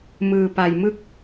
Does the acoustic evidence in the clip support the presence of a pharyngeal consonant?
no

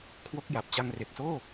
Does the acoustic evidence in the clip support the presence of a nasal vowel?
no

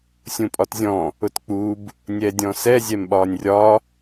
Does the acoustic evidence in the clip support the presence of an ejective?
yes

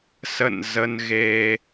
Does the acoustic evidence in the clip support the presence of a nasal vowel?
no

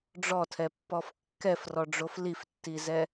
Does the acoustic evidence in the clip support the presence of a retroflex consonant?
yes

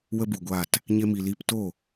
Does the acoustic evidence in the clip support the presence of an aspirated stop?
no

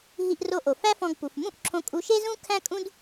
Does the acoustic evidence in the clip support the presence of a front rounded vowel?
no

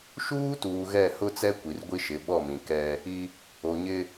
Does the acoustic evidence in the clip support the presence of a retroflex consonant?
no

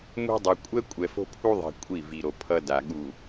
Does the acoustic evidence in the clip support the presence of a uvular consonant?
no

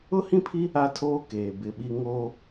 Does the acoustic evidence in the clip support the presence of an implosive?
yes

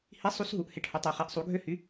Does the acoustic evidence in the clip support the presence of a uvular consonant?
yes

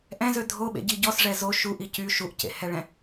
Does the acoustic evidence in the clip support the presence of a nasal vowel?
yes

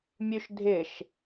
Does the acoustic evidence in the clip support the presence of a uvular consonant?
no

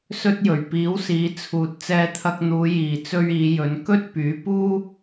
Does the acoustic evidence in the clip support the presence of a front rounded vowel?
yes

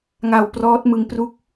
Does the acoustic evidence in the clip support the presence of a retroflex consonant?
no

